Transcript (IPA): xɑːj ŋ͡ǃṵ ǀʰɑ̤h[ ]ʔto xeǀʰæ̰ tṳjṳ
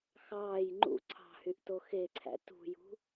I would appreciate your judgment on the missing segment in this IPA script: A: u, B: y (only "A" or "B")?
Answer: B